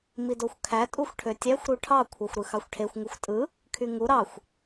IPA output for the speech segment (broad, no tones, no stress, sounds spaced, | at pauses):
m i d o xʷ kʰ æ tʼ u xʷ ʈʰ ø tʲ æ xʷ ɾ u ʈʰ ɑ kʷʰ æ xʷ ɾ ɯ x ɑ xʷ ʈʰ e xʷ ŋ u xʷ tʼ ɯ | kʰ y ŋ u ɾ ɑ xʷ